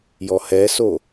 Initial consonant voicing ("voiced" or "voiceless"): voiced